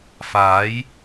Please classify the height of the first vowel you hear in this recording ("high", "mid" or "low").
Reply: low